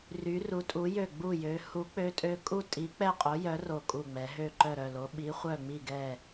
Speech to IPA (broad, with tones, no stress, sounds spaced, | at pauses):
r y˨˦ r u˨˦ tʼ u˨˦ j ø˦˨ ɡ͡b u˦˨ j ø˨˦ h u˨˦ k͡p ø˨˦ tʼ ø˨˦ kʼ u˦˨ tʼ i˨˦ k͡p ɛ˦˨ qʼ o˨˦ j œ˨˦ r o˦˨ kʼ u˦˨ ŋ͡m ɛ˨˦ ɦ ø˦˨ ǃ œ˦˨ ɾ œ˦˨ l o˨˦ ɓ i˨˦ χʷ œ˦˨ ŋ͡m i˦˨ ɡ ɛ˦˨